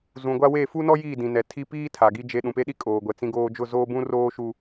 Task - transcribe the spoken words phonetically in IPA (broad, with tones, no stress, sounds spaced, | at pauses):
z ũ˨ ɡʷ a˦ w e˦˨ f u˦ n ɔ˦ j iː˦˨ d ĩ˨ n ɛ˨ tʰ i˦ p iː˦ tʰ a˨ ɡ i˦ d͡ʒ e˦ ɗ ũ˨ p e˦ ɗ i˦ kʼ oː˨ ɡʷ ɛ˨ t͡s ĩ˦ ɡ oː˦ d͡ʒ ʊ˦˨ z oː˦ b ũ˦ r oː˦ ʃ u˦